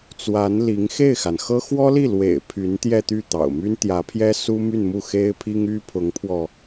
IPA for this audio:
t͡swa˧˥nli˧˥ŋ xe˥˩ɪ̯xa˩nxɤ˥ xwɔ˥li˥˩lwḛ˨˩ɪ̯ pʰy˧˥nt̪jɛ˥˧t̪y˥˩ t̪ɑ̰˨˩ʊ̯my˥nt̪jä˧˥ pʰjɛ˥su˥my˥˧nmu˥˩ xe˥ɪ̯pʰi˥ŋ y˥pʰʊ˧˥ŋpʰwɔ˧

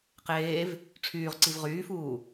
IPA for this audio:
qeːv | ʈ͡ʂʰyːʁǀiv ʁyːfuː

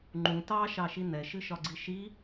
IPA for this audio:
ŋ͡ǃũ tɑʃɑʃi nɛʃɨʃɒɡ͡ǀi ʃi

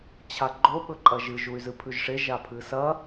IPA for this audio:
t͡ɕʰaɡ͡ǃo ɓɵǃʼɐʒɨ ʒuy̯zɨpʰʉʒʂe ʒapʰɨsɐ

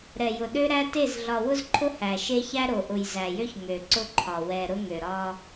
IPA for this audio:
ɾɛ˨jʊ˨ ɗø˦ɾæ˦te˦˨z ɮɒ˨wʊ˦zǃʰʊ˦ hæ˨ʃe˦çæ˦ ɾo˨ʔʊ˨jzæ˨jø˦ç ŋø˨ǀʊ˦ǃʰɒ˨ wɛ˨ ɾʊ˦ŋø˨ ɾɒ˦

